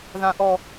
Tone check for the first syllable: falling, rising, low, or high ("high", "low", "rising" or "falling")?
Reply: low